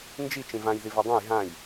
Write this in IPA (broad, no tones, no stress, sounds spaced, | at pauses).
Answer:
n d͡ʒ i t͡ʃ ĩ v ã j ð i v a dˤ ã j ɦ ã j